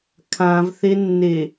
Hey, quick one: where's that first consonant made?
velum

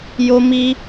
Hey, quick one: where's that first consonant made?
palate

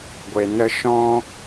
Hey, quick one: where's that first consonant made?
velum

